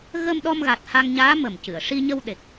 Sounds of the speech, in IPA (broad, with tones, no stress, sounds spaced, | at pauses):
ɣ ə˧ m ɗ ɔ˧ m ɣ a˨˩ t̚ h a˧ ŋ ɲ aː˧˥ m ə˨˩ m c ɨ˨˩˨ ə̯ ʂ i˧ ɲ ə˧ w ɗ e˨˩ k̚